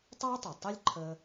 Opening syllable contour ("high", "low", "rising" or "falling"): high